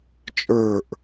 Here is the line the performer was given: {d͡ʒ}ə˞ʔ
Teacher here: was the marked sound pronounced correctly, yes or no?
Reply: no